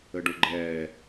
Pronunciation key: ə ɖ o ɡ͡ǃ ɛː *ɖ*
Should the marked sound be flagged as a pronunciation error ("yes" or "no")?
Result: yes